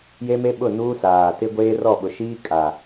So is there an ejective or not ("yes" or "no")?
yes